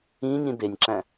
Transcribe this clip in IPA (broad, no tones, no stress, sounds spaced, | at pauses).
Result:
ĩ ɲ ĩ b e nʲ ǁ æ̃